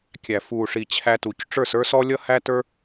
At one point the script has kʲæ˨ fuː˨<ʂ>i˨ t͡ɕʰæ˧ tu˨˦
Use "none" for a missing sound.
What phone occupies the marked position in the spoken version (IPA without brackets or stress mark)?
ʂ